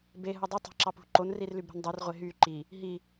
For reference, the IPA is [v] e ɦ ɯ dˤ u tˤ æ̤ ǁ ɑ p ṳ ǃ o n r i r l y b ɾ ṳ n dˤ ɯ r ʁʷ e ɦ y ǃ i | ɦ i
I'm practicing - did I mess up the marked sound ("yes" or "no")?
yes